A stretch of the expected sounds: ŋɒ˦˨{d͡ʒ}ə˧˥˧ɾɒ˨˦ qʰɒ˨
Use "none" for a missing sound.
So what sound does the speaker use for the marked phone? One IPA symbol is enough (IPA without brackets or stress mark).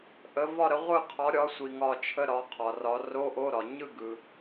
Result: t͡ʃʰ